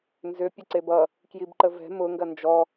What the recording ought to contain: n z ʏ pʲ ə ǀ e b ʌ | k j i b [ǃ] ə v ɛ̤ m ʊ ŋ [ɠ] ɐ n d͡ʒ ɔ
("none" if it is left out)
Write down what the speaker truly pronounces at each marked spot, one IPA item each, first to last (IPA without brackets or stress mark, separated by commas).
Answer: ǃ, ɡ